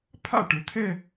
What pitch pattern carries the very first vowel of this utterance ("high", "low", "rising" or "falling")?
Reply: falling